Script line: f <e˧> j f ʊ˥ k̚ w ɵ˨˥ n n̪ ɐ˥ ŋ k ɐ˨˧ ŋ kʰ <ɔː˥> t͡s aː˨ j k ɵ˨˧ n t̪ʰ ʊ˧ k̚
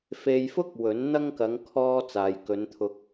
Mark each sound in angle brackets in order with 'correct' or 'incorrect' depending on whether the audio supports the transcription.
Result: correct, incorrect

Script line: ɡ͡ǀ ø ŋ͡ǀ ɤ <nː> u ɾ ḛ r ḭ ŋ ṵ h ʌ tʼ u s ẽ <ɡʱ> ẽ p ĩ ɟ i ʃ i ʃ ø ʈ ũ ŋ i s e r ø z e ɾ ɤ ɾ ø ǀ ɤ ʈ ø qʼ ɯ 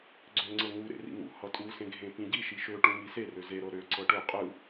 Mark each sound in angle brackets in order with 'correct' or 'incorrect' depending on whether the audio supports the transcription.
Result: incorrect, correct

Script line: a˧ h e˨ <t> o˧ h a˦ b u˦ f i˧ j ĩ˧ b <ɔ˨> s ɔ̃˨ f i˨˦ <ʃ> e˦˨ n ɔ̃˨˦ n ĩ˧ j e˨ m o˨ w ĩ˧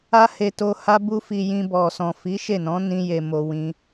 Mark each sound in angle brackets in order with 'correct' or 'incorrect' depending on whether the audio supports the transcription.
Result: correct, correct, correct

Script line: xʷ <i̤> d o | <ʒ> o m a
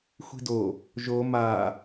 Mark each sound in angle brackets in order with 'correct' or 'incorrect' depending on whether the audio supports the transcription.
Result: correct, correct

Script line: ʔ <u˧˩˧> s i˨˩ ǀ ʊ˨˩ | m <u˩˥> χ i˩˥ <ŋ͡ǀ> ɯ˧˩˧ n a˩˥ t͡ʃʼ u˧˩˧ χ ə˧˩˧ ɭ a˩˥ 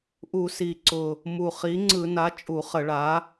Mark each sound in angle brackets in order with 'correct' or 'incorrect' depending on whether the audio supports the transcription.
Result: correct, incorrect, correct

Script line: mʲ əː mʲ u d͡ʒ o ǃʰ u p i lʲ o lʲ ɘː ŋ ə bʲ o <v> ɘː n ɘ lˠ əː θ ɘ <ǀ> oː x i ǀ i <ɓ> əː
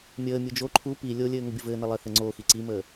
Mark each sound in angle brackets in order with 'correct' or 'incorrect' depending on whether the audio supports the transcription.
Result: correct, incorrect, incorrect

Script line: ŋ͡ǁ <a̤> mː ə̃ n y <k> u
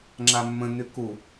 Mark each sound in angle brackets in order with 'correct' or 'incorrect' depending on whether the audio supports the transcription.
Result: incorrect, correct

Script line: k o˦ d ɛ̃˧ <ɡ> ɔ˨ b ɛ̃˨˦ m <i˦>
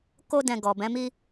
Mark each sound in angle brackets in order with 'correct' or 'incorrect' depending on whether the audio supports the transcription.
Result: correct, correct

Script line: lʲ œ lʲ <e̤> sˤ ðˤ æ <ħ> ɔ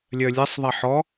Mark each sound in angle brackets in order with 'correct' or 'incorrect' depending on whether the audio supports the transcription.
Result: incorrect, correct

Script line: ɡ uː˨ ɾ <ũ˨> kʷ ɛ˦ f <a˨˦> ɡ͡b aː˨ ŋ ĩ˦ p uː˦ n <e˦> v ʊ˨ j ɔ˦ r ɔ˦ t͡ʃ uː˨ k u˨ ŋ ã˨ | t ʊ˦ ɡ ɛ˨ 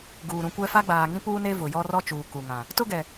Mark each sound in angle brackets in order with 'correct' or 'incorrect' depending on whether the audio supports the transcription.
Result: correct, incorrect, correct

